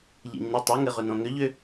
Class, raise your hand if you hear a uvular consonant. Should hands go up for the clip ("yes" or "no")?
yes